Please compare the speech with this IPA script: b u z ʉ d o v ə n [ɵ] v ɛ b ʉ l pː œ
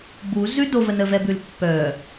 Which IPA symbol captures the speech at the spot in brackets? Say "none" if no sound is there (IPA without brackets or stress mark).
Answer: ə